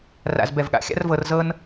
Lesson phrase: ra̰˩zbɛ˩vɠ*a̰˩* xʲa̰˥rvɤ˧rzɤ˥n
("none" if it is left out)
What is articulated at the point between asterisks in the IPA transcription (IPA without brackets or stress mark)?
a̰˩